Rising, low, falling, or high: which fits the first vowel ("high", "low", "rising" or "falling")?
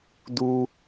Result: high